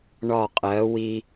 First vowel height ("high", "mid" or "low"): low